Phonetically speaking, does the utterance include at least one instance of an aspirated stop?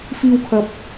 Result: yes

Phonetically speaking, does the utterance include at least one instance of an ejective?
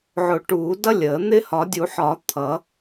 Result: no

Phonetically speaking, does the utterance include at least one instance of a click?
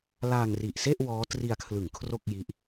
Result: no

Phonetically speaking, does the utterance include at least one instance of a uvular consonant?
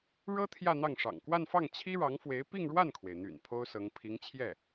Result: no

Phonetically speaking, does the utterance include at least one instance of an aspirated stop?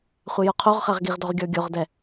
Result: yes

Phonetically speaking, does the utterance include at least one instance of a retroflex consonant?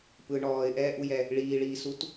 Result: yes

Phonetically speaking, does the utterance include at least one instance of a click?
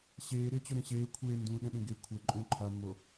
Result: yes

